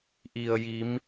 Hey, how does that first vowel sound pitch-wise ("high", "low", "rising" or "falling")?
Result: low